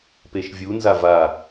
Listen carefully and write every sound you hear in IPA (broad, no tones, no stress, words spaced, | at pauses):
peʃvʲunza va